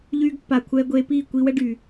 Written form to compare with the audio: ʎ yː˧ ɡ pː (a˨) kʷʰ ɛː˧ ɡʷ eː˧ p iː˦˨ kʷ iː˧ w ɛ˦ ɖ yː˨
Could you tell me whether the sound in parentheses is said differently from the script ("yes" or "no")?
no